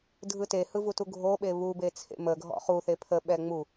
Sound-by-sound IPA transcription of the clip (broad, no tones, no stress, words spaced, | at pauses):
dʱɯtehɯ vutuɡʱoɓe βube t͡sʰḛməɡʱɔ̰ χuθe pʰəɓɛ ŋ͡mu